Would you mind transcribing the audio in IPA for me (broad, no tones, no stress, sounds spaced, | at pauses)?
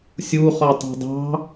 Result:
sʲ u χ ɔ tˤ e̤ dˤ ɑ̤